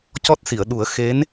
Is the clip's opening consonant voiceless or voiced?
voiceless